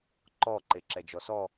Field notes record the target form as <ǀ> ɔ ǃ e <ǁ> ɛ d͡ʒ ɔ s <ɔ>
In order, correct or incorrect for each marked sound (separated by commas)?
incorrect, correct, correct